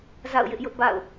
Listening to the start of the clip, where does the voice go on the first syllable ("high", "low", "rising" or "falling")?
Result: falling